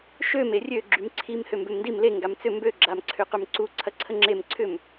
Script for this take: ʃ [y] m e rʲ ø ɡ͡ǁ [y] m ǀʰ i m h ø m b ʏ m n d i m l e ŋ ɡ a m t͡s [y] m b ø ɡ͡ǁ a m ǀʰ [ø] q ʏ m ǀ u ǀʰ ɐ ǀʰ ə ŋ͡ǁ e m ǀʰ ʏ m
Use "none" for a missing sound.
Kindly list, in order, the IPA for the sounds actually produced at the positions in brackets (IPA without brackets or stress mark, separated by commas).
ø, y, ʏ, ø